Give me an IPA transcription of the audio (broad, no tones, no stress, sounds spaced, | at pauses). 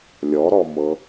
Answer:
lʲ ɔ ɾ ɔ m ɤ